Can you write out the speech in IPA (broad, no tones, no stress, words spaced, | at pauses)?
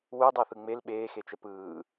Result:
wudˤaθɯ ŋ͡mel ɓeːxet͡ʃɛ pɯː